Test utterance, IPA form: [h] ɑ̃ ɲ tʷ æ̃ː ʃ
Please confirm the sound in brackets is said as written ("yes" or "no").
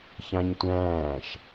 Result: no